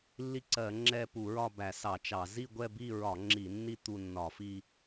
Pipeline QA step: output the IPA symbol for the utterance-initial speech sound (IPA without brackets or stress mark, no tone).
lː